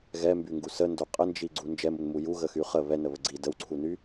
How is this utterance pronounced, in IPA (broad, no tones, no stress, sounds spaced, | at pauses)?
ɣ ɛ m b y ŋ ɡ u s ə n d o qʼ ə n d͡ʒ i ɡ͡ǀ u n d͡ʒ ɛ m u n m u j u ɣ ə x y χ ə β ɛ n ə β ə ɡ͡ǀ i d ə w ǀʰ u n y